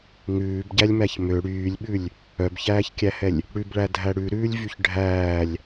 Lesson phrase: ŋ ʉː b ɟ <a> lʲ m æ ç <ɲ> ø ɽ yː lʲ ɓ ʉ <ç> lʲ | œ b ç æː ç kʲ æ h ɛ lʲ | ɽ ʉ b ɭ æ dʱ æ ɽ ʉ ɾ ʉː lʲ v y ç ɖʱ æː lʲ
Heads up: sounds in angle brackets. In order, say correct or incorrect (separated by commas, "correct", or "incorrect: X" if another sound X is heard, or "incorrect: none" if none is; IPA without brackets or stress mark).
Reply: incorrect: æ, incorrect: m, incorrect: none